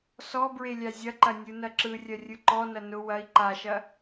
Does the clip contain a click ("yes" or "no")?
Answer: yes